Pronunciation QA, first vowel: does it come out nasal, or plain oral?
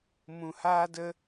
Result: nasal